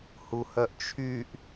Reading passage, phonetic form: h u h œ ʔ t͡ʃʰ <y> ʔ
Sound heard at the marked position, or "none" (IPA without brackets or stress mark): y